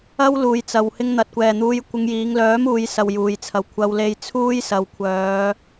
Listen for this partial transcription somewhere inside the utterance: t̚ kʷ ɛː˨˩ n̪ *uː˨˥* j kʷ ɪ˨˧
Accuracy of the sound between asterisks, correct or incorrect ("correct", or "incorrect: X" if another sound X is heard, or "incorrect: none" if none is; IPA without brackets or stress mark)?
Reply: incorrect: uː˨˧